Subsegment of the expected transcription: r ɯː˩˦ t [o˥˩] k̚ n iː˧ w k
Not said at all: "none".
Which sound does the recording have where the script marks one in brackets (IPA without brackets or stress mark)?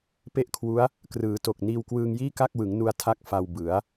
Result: o˨˩